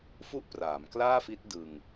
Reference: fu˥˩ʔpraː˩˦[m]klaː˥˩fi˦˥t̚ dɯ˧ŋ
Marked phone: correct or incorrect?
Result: correct